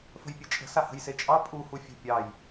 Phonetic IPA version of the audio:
f ə̤ j pʲ e t͡ʃʼ ə̤ s a h ə̤ j s e t͡ʃʼ ɑ pʼ u h u fʲ ə̤ pʲ ɑ j

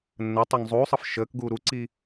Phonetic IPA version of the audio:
nː ə tˤ ɘː ŋ zˤ uː sˤ ɤ f ʃ əː k ɡ uː ɾ u ǀ i

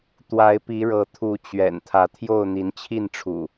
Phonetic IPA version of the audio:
t̪ w a˨˦ ɪ̯ p i˨˦ ɻ ɤ˨˦ t̪ʰ u˨˦ t͡ɕ ɥ ɛ̰˨˩ n t̪ʰ ä˨˦ t̪ʰ j o˥˨ ʊ̯ n̪ i˨˦ n t͡ɕʰ i˥˨ n ʈ͡ʂʰ ṵ˨˩

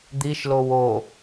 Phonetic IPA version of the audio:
d̪ i ʃ l o w o

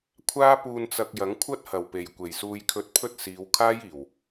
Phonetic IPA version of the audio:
kʷʰ aː˥ p uː˧ n t͡s ɐ˧ k̚ j ɐ˨˥ ŋ kʷʰ ɐ˥ t̚ h ɐ˨˩ w p e˨˩ j kʷ e˨˩ j s uː˧ j kʰ ɵ˧ t̚ pʰ ɵ˥ t̚ s iː˨˧ w kʰ aː˥ j iː˨˩ w

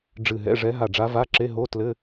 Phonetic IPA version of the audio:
ɖ͡ʐ ɨ˧˩ ɦ ɛ̰˧˥˧ ʐ ɛ˧˥ ɦ a˧˩ ɖ͡ʐ a˧˥ v a˧˥˧ ǁ e˧˥˧ ɦ o˧˥˧ t l ɘ˧˥˧

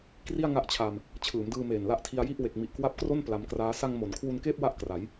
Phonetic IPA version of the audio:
k r i˥˩ a̯ ŋ a˦˥ ʔ t͡ɕʰ a˧ m | t͡ɕʰ ɯː˩˦ m d ɯː˧ m eː˨˩ n l a˦˥ ʔ tʰ i˧ a̯ j i˥˩ ʔ w e˨˩ k̚ m i˨˩ ʔ k w a˦˥ p̚ k r o˥˩ n p l a˧ m k r aː˦˥ s a˧ ŋ m o˩˦ n kʰ w u˧ n k eː˥˩ p̚ w a˥˩ ʔ k r a˩˦ j

